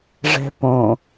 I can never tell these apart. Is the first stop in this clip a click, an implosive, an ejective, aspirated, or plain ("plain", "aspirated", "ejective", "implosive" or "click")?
plain